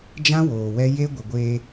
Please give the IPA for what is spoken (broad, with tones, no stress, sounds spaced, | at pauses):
d͡ʒ ã˦ w oː˨ w ɛ˦ j e˦ ɡʷ ɪ˨ ɡʷ eː˦